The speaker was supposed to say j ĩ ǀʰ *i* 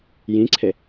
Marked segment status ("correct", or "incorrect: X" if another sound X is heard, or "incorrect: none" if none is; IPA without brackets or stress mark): incorrect: e